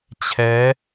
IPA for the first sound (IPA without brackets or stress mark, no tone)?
t͡ɕʰ